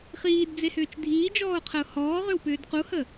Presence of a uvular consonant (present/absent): present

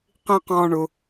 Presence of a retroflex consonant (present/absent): present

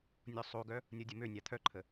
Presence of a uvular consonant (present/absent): absent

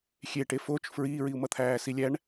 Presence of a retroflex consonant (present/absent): present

